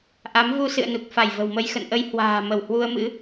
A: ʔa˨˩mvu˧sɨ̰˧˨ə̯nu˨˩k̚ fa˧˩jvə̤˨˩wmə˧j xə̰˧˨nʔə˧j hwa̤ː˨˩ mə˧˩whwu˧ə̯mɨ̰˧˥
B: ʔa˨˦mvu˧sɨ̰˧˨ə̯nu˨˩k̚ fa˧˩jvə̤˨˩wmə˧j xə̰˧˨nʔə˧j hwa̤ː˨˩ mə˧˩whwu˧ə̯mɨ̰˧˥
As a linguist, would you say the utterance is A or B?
B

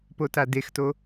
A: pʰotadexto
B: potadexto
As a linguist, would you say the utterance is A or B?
B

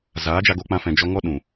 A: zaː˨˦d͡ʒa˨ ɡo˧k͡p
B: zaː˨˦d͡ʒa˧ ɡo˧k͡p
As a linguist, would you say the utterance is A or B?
B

